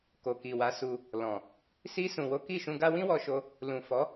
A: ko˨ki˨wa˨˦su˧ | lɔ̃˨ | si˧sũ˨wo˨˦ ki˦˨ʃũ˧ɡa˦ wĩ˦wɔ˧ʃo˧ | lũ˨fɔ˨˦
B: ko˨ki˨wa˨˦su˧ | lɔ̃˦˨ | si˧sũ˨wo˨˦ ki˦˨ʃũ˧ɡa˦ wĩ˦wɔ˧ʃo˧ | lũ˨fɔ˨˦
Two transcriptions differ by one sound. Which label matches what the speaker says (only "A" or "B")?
A